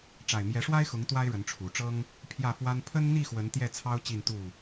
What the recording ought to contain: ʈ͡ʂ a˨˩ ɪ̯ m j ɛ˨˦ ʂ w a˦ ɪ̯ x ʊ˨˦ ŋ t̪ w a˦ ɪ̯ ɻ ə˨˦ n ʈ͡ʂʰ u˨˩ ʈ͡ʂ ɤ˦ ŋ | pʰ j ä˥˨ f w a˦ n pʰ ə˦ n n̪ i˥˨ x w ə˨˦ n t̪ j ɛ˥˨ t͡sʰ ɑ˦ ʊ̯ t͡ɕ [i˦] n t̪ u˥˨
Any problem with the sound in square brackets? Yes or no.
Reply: yes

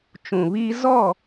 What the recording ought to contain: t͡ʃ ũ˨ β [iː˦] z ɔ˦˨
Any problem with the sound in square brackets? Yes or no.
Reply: no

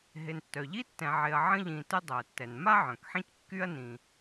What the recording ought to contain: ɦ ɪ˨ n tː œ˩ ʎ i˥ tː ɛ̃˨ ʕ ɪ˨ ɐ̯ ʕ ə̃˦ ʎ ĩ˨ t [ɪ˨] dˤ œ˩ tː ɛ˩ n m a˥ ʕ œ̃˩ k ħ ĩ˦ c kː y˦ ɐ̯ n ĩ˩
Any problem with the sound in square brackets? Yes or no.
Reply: yes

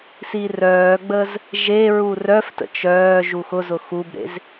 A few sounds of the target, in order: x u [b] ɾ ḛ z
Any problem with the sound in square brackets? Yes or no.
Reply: no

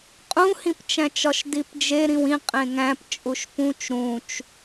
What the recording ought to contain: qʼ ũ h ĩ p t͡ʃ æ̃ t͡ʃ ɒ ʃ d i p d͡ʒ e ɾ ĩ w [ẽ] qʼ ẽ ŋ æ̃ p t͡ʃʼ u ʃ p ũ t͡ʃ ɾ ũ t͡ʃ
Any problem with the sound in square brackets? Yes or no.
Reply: yes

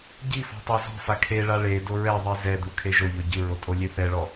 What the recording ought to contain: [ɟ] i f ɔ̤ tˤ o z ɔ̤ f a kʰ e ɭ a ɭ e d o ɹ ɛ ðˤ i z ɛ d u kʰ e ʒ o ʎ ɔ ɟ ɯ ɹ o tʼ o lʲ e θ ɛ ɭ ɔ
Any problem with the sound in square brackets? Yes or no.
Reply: no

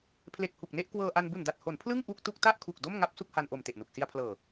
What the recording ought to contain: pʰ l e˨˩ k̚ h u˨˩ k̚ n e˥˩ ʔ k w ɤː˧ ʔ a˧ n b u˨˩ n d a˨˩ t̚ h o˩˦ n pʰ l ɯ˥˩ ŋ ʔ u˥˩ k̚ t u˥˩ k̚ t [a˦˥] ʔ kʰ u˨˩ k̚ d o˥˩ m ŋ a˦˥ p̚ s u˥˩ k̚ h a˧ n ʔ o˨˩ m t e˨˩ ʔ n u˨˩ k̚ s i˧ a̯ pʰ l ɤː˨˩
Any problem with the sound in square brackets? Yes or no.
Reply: yes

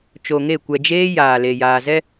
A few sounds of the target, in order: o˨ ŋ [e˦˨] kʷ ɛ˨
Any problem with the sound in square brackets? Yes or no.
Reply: no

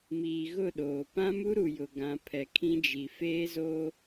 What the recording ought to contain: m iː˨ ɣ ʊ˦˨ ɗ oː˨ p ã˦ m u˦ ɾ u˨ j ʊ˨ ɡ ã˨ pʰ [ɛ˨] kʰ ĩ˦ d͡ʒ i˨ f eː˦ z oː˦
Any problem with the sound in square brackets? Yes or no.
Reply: no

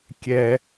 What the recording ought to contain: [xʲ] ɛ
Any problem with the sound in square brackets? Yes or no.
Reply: yes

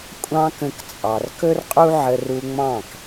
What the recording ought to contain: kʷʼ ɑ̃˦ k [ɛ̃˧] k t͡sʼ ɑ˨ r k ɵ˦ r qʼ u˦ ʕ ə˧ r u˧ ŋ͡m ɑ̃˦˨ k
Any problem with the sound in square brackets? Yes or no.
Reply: yes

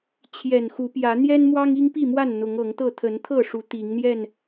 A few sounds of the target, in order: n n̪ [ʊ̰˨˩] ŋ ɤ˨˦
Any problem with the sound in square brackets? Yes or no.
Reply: yes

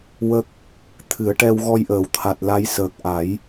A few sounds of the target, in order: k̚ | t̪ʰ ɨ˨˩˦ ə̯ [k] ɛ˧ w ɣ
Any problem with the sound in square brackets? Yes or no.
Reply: yes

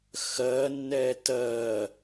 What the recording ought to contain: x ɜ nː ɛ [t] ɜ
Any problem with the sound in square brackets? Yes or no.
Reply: no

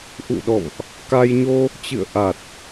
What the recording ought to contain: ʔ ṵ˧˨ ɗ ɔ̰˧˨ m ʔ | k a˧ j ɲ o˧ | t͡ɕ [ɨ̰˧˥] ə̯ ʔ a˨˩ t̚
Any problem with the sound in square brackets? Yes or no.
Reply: yes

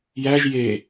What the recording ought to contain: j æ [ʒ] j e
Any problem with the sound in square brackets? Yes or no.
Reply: no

